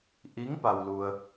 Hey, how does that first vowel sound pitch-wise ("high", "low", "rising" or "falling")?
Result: rising